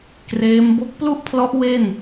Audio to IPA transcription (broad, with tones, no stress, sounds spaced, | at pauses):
k r eː˦˥ m b o˦˥ k̚ p l u˥˩ ʔ pʰ l ɔ˦˥ ʔ w e˥˩ n